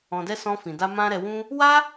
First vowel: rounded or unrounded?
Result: rounded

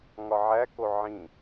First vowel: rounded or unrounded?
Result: rounded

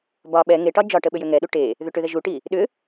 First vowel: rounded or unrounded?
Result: rounded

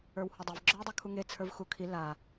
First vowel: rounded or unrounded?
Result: unrounded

